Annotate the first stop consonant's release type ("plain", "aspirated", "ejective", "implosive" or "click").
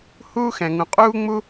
ejective